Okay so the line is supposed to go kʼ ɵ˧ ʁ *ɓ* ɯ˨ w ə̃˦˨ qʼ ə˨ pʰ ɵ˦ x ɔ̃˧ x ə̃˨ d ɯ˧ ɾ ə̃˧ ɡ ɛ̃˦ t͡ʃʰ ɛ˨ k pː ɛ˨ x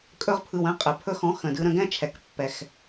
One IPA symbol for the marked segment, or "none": pʰ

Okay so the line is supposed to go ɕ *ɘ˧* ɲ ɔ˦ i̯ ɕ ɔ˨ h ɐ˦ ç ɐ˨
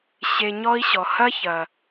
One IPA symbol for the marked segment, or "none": e˧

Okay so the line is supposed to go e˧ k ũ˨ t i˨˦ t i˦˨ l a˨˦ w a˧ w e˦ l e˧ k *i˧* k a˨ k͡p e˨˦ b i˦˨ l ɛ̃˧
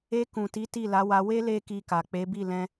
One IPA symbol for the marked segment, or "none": i˧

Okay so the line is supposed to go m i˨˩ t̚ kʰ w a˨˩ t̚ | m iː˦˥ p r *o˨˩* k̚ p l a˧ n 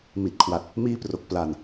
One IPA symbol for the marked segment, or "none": o˨˩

